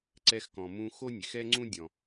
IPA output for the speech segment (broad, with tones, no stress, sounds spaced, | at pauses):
ǀ ɛ˧ x k ɔ̃˩ m ũ˧ x o˥ nʲ e˩ x ɛ˥ ŋ͡ǀ ũ˥ dʲ ɔ̃˩